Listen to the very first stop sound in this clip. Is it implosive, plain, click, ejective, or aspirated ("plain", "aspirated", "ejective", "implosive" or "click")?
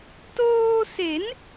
plain